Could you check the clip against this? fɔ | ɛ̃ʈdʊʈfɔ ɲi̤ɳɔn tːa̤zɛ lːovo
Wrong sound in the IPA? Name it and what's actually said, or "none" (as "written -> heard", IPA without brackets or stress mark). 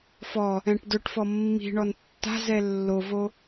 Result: ɲ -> mː